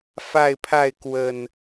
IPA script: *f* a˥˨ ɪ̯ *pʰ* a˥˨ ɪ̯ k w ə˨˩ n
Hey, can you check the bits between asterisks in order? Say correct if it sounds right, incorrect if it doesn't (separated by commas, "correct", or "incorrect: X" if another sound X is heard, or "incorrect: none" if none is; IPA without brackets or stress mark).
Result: correct, correct